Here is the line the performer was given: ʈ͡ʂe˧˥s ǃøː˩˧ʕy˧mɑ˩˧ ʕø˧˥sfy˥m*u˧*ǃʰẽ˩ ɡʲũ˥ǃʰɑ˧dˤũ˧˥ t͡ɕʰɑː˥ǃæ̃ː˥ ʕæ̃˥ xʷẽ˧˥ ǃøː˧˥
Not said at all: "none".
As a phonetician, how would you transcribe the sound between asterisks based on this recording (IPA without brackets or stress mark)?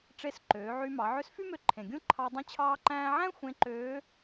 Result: ø˧